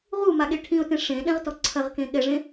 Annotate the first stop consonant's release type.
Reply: implosive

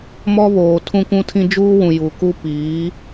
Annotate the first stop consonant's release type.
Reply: aspirated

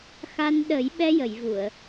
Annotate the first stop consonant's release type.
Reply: implosive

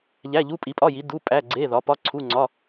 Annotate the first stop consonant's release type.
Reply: ejective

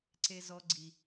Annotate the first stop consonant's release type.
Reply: click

